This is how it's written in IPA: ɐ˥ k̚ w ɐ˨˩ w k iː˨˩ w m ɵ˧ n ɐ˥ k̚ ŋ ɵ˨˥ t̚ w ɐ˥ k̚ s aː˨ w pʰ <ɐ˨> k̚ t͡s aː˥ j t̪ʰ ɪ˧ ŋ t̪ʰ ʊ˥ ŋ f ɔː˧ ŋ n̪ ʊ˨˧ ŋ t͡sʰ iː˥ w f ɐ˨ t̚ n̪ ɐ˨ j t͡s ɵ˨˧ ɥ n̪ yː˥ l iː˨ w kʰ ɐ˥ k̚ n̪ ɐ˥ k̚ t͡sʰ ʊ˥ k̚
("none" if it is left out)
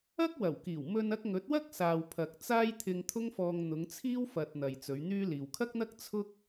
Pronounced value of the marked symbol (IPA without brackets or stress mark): ɐ˨